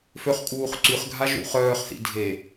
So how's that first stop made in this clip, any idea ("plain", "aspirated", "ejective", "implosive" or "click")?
ejective